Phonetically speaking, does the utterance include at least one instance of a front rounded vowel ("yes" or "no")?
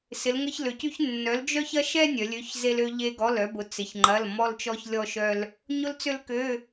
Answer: yes